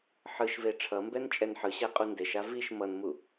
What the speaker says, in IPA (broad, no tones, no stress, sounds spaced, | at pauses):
ħ ɯ ʃ v e ʈ͡ʂʰ ʌ m b ɛ n t͡ʃʼ ɛ n ħ ɯ ɕ ɛ qʼ u n d e ʃ a v i ʃ m ʌ n m u